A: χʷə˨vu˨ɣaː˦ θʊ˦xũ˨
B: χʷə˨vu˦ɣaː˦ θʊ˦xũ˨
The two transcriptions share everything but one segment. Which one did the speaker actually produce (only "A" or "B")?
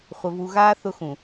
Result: A